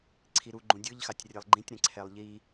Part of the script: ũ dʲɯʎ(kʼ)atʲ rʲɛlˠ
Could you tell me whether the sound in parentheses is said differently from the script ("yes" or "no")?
yes